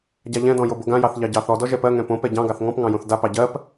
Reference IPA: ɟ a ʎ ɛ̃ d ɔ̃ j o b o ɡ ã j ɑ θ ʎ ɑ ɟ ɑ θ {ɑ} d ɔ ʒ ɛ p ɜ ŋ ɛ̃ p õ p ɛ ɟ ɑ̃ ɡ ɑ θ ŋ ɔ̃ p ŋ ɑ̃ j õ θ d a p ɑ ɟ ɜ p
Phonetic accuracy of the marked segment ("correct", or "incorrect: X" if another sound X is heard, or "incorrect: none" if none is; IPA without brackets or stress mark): incorrect: ɔ